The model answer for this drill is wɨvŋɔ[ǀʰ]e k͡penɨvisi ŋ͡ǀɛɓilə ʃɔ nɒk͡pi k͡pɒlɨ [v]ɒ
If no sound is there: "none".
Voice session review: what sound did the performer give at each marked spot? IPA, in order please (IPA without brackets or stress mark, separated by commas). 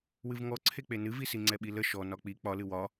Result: ǀʰ, w